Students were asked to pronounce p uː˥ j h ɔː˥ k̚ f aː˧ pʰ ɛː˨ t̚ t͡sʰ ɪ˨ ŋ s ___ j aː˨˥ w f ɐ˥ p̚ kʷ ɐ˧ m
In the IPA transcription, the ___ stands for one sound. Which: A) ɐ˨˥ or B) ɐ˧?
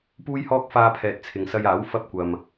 B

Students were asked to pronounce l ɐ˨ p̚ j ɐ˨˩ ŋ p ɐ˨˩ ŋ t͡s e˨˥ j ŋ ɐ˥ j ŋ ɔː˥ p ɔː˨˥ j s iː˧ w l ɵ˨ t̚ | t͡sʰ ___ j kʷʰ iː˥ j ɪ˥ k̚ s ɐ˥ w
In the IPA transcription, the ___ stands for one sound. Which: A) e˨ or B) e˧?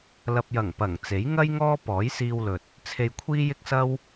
B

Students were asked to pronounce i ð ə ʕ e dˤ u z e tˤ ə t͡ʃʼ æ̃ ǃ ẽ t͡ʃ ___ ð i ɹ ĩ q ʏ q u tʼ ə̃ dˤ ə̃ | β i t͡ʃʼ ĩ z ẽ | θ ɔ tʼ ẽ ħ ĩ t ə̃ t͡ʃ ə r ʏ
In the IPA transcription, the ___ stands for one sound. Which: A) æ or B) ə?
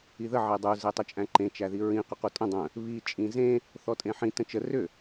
A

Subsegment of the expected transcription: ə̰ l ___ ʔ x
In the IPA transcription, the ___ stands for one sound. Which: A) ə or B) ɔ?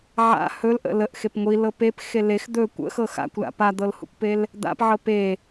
A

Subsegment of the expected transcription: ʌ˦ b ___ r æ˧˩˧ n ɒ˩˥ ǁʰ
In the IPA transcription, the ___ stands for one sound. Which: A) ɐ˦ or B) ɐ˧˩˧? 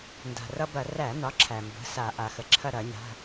B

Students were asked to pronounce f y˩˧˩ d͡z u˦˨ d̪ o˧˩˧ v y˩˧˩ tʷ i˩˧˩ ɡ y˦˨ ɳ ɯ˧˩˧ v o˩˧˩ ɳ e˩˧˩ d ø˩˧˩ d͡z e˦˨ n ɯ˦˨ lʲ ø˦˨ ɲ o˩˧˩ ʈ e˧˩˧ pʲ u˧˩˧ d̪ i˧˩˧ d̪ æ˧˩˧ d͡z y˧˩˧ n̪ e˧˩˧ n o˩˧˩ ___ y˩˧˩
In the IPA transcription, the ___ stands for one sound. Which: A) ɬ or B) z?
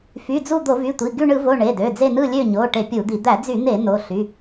A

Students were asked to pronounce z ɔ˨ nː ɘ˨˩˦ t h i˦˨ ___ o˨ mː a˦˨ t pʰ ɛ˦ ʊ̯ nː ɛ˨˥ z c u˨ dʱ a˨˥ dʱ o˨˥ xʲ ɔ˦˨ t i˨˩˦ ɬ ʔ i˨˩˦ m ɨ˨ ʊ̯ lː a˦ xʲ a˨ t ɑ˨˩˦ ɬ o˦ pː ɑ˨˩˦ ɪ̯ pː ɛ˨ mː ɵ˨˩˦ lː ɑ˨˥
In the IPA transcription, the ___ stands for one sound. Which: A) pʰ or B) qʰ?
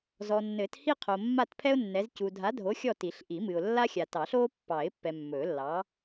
B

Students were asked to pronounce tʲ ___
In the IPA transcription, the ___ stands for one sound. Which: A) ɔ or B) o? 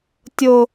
B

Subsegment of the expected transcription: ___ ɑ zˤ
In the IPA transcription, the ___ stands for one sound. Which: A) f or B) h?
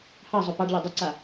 B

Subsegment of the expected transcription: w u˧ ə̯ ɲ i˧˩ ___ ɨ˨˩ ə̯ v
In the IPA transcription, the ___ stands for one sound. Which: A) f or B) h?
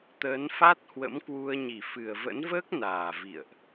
A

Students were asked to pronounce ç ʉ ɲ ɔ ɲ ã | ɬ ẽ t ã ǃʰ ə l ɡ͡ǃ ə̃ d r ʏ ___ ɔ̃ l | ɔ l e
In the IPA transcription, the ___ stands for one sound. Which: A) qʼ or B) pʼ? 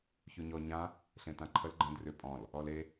B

